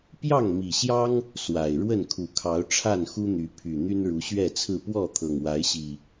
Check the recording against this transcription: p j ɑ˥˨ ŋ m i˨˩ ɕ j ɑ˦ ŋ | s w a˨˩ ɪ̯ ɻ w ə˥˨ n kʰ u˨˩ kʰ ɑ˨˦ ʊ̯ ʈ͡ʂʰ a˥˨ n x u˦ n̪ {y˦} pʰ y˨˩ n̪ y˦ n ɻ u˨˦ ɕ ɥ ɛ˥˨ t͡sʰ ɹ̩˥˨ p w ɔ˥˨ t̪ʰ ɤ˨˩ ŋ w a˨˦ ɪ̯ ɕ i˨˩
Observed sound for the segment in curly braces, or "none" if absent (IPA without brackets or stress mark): y˨˦